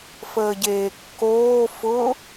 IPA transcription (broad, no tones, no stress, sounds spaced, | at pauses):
f əː ɟ eː kː oː f ʊ